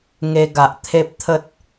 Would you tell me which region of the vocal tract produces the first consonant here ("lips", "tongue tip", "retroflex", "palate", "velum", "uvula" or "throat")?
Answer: velum